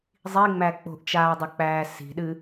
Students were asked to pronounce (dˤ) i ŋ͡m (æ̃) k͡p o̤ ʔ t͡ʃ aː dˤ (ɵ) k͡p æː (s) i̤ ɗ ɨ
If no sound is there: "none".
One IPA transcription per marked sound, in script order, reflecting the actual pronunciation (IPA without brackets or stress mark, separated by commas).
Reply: zˤ, æ, ɵ, s